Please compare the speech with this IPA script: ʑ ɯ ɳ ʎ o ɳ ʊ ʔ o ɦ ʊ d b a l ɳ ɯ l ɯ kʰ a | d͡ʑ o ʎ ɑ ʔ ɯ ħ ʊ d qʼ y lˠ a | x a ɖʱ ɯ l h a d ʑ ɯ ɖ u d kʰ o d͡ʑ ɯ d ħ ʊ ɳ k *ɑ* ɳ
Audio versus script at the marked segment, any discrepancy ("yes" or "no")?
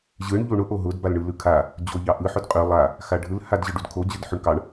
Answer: no